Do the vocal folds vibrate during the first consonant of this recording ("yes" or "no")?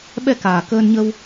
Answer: yes